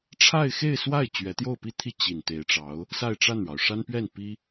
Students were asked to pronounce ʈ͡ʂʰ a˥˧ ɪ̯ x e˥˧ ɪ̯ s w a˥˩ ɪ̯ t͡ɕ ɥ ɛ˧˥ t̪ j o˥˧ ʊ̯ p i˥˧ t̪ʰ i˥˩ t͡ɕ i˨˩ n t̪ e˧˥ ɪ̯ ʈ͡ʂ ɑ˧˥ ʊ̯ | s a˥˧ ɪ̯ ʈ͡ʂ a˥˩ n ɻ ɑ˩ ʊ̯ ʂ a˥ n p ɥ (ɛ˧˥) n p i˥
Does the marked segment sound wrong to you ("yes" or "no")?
yes